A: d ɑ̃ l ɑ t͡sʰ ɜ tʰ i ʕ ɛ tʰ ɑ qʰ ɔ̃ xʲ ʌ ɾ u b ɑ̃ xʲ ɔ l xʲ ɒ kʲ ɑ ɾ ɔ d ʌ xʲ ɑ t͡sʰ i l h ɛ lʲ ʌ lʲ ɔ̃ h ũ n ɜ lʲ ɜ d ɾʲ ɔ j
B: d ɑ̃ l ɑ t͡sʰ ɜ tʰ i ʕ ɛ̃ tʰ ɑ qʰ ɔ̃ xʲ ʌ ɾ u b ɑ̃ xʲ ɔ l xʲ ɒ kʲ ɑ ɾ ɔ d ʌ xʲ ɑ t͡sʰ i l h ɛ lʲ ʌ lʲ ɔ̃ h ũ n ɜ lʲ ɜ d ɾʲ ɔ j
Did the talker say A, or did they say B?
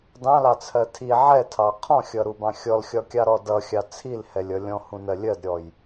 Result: A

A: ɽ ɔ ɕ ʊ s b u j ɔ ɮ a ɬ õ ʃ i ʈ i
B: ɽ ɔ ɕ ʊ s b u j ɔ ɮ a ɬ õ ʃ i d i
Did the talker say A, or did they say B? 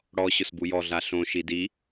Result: B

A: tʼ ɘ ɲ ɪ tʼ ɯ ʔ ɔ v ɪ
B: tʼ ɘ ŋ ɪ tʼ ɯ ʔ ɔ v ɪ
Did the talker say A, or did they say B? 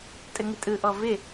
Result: B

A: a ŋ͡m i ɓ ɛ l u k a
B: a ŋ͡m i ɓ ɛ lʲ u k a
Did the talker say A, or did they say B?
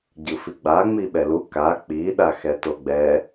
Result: A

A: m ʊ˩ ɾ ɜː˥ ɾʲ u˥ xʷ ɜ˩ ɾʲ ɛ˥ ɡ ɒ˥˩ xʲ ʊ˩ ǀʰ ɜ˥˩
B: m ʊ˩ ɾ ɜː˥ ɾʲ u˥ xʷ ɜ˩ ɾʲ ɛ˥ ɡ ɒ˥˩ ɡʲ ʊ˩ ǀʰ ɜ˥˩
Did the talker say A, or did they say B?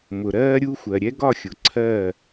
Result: A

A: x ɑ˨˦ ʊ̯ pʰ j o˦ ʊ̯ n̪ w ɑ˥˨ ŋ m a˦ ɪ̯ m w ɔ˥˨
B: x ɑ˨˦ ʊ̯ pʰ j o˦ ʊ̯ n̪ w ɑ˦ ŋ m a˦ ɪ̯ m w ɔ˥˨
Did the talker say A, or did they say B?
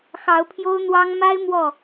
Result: B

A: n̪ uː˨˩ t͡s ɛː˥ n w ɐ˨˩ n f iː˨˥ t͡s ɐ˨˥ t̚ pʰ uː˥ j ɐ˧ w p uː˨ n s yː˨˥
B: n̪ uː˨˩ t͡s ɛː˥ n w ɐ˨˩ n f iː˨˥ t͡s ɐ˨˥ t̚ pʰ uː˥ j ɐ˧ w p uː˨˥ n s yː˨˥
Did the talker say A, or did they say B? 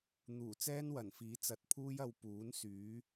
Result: B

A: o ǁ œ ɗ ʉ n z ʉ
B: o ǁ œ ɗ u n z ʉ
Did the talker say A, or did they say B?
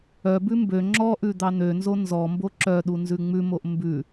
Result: B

